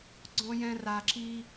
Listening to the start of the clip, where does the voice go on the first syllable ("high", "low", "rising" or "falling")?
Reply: high